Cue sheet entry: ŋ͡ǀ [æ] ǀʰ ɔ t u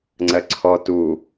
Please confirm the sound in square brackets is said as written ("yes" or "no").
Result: no